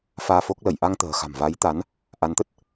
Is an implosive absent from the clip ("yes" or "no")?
yes